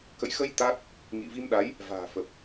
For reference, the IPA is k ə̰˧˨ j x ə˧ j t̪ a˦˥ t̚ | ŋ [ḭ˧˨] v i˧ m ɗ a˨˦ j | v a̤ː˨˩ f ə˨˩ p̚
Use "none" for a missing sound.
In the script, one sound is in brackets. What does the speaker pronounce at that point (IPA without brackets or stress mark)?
ḭ˧˨